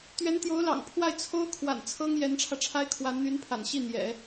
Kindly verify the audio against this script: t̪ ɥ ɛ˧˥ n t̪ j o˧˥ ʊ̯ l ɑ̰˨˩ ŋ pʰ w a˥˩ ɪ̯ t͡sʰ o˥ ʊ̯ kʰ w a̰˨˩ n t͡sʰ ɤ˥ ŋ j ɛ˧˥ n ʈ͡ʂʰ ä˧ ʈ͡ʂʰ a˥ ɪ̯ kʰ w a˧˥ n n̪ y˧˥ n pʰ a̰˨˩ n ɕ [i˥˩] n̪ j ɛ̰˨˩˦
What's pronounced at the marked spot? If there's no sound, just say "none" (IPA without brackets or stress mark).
i˥˩